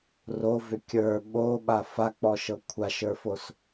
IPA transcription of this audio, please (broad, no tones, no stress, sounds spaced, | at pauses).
r o v ʏ kʲ ə˞ ɓ o ɓ a f a k͡p ɔ ʃ ɤ kʷʰ a ʃ ə˞ f o s